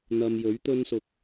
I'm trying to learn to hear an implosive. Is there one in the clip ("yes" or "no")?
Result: no